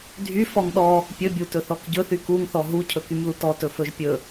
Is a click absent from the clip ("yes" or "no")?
yes